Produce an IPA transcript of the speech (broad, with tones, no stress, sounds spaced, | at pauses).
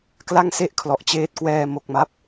k l a˥˩ ŋ s e˥˩ ʔ kʰ l ɔ˨˩ ʔ t͡ɕ eː˦˥ t̚ k w ɛː˧ m o˨˩ k̚ m a˦˥ p̚